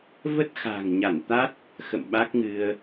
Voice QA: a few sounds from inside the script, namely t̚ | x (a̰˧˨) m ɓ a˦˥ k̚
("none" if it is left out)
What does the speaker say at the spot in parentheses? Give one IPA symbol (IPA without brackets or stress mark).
ə̰˧˨